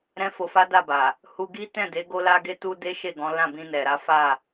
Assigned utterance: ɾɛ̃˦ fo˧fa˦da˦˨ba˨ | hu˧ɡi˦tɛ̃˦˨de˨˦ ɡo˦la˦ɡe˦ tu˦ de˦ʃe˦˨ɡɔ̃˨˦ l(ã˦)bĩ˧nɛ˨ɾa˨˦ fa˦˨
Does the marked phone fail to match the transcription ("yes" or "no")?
yes